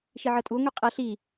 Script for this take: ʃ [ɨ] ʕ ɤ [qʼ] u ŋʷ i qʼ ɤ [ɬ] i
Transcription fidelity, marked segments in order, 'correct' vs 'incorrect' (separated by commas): incorrect, incorrect, correct